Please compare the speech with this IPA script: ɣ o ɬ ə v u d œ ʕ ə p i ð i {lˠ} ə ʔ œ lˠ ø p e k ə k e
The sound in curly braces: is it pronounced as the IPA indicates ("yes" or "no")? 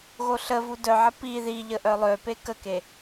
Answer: no